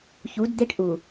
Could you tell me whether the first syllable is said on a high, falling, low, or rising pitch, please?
rising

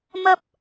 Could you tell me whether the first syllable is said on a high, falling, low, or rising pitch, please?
high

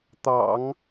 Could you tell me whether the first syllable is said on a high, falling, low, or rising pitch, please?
low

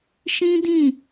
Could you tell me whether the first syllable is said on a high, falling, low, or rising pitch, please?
high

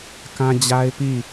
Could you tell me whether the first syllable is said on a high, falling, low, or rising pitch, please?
high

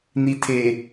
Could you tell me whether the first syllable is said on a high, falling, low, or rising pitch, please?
low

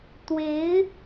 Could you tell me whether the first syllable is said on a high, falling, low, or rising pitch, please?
rising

